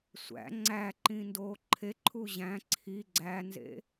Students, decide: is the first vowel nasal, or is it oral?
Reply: oral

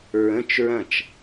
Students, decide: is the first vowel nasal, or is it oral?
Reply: nasal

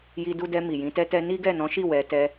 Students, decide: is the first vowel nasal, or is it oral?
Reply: oral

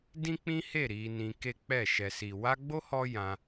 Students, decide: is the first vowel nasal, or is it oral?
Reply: nasal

